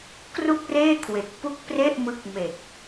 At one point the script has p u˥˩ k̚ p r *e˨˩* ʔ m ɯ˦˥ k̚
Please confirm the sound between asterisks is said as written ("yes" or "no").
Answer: no